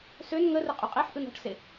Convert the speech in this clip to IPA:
søn ŋərɘ qʼøqʼeħʔɯn ɔ̤ʈse

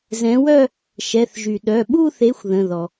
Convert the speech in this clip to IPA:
zɛ̃˨˦wœ˥˧ | ʃɛ˩˧˩θʒy˩ ɗœ˩˧˩ɓu˥˧θe˨˦xʷ ðə̃˩˧˩ðɔ˩

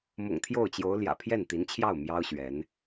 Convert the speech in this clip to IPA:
mʊ̰˨˩ŋt̪ʰjo˥˩ʊ̯t͡ɕjo˧˥ʊ̯ ljä̰˨˩pʰjɛ˥˩nt̪i˧˥nt͡ɕʰjɑ˥˩ʊ̯ mjɑ˥ʊ̯ɕɥɛ˧˥n

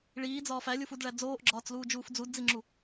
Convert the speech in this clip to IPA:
ɭiːd͡zɒːf ælʲufudɭæ d͡zoːʔɡ͡ǁɒːt͡sluːd͡ʒuːf d͡zudd͡ziŋ͡ǁu

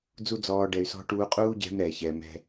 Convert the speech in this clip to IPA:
d͡zu˦d͡zɔː˧ ɖɛ˨y̯sɔ̤˧ ʈuː˧ qʼuː˦ɟɛ̤˧m ɾɛ˨çɛ˨mɛ̤˧

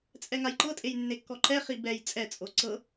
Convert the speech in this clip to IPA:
t͡sʼɛŋajǃɤtʼej nːekːɔǃɛχi bɛj t͡sʼɛt͡sʼo ǀɤ

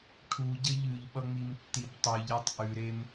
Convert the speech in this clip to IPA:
ʈʰuɟə ʎʉʎɓʌŋ͡mimtːib tˤʉʎetˤ ʔʉɾem

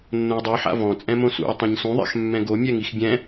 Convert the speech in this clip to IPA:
nːõɐ̯dˤuħa̰ vɔ̃t͡sʼɛ̃ mõsṵɐ̯ tˤãɲsũðˤa̰x mːɛ̃ɡo mʲɛŋixbʲɛ̃

